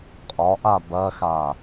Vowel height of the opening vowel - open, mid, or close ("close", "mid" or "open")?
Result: open